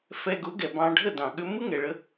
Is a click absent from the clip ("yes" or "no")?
yes